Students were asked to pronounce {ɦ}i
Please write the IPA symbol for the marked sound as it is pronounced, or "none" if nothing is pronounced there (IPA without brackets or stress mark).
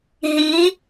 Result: ɦ